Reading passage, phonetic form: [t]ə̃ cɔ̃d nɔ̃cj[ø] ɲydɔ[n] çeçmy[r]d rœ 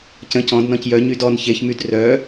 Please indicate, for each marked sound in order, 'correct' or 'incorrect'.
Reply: incorrect: c, incorrect: œ, correct, incorrect: none

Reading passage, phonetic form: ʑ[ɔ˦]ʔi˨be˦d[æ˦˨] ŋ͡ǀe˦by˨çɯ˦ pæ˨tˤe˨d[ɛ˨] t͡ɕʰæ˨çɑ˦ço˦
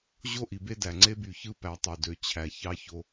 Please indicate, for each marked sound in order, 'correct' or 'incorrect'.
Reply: incorrect: o˦, incorrect: æ˨, incorrect: ø˨

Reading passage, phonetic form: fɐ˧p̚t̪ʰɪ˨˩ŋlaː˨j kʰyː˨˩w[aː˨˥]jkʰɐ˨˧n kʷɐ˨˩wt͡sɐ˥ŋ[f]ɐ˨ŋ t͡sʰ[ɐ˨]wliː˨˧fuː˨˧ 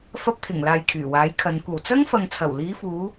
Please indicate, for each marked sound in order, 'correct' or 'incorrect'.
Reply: correct, correct, incorrect: ɐ˨˩

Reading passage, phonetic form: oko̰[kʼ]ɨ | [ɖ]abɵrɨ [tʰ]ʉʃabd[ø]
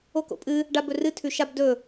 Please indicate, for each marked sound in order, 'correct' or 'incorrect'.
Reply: incorrect: pʼ, correct, correct, incorrect: ɵ

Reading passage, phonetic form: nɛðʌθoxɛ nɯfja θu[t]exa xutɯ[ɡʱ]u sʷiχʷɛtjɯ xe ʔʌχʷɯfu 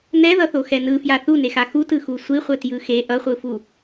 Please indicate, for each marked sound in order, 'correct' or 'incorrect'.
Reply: incorrect: n, incorrect: x

